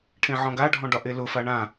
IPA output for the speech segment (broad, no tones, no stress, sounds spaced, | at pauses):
ʈʰ ẽ ʕ ɔ̃ ɡ a ɖʱ ɔ̃ ɖ ɒ ʔ e l ʊ f a ɳ ã